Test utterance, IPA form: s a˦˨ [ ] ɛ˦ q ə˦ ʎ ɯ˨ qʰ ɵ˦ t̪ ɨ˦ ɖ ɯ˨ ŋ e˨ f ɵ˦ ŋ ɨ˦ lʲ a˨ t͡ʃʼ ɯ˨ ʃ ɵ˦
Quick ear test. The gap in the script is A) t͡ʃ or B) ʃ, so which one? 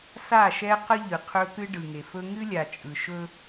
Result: B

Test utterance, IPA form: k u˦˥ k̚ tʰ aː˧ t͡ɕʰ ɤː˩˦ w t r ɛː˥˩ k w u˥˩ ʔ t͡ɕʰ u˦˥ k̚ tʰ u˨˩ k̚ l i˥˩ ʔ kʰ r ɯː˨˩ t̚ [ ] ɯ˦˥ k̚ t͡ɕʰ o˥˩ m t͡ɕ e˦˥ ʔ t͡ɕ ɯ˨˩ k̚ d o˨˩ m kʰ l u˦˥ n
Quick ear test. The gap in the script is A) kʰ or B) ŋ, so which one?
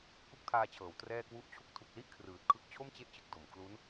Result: A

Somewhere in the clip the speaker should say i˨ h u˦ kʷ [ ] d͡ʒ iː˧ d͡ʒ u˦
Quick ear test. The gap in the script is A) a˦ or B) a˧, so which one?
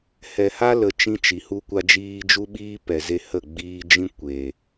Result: B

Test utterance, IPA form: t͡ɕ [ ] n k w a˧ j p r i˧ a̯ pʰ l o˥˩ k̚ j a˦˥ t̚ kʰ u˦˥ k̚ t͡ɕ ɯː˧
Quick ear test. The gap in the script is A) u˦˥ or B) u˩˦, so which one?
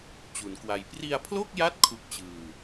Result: B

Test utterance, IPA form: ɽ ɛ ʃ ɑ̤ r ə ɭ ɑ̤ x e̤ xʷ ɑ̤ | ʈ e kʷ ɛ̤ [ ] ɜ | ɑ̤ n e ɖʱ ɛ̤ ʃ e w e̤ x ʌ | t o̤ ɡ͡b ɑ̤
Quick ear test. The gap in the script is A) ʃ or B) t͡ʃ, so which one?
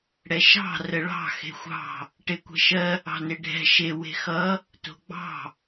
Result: A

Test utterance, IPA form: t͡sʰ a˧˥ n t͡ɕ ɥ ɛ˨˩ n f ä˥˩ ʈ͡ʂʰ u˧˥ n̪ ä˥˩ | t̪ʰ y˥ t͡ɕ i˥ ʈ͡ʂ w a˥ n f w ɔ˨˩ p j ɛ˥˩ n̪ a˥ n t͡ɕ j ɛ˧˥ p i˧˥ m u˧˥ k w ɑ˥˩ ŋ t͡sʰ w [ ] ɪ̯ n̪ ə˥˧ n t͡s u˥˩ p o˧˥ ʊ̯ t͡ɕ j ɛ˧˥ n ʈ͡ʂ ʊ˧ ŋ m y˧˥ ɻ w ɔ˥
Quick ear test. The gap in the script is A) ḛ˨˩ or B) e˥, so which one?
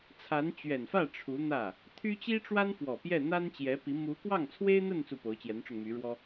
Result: B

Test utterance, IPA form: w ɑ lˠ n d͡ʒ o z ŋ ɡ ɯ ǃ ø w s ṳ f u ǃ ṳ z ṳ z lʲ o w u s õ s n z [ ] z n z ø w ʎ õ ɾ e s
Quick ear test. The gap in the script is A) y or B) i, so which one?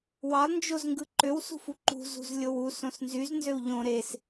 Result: A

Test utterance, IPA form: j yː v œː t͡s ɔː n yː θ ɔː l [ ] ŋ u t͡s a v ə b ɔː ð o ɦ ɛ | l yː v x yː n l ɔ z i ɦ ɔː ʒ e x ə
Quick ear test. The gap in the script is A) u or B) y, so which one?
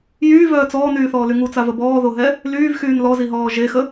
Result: B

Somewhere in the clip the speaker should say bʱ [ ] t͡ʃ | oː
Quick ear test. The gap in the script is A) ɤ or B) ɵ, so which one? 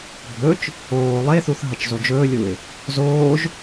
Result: B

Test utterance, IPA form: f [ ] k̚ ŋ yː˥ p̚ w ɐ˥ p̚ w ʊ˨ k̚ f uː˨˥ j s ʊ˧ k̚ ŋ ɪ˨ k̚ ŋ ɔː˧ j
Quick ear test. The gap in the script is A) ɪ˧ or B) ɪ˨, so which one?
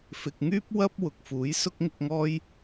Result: B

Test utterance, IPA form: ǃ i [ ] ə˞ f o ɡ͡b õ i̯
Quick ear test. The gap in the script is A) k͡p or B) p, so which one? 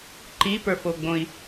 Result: B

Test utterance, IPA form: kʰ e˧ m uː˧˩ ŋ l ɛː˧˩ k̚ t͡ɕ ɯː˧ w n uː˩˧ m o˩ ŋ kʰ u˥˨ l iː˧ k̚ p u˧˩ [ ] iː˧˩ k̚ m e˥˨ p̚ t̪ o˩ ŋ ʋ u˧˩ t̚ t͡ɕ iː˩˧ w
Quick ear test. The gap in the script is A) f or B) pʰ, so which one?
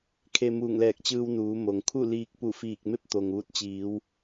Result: A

